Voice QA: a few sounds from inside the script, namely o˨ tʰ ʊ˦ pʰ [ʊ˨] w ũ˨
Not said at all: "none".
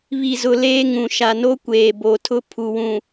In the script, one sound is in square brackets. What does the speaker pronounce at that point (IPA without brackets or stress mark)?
u˨